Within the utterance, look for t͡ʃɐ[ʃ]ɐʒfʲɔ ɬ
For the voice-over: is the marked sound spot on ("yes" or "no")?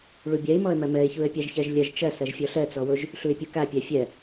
no